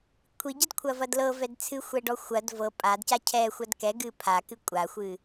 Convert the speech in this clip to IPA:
kʷʰ i ɟ ɐ d kʷʰ ɐ v ɐ d l ɤ v ɛ d t͡sʰ ɨ xʷ ɛ ɖ ɔ xʷ ɐ d v ɤ pʼ a d c a cʰ ɛ xʷ ɐ d k ɛ ɡ ɨ pʰ a k ɨ kʷʼ a xʷ ɨ

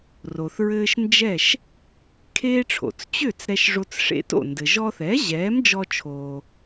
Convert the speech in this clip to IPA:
r o˩ θ ɹ ɘː˧ ʃ n d͡ʒ ɛ˥˩ ʃ | kʰ eː˥ ʈ͡ʂʰ o̰˩ t͡s t͡ɕ ø˥˩ t͡s ɾ ɛ˧ ʃ ʐ o˧ t͡s ʂ ḛ˧ t o̰˥˩ n d ɘ˩ ʒ ɔ˧ θ ɛː˩˥ ʑ ɛː˩˥ m d͡ʒ ɔ˧ t͡ʃʰ oː˩

